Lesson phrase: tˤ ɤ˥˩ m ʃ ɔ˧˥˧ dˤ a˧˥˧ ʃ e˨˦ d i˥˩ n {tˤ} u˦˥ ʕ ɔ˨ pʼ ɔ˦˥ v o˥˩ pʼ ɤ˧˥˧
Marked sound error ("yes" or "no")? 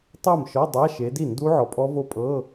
yes